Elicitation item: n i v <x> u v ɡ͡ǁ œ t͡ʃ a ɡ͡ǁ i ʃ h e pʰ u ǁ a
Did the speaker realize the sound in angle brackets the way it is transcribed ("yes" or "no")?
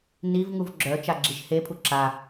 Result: no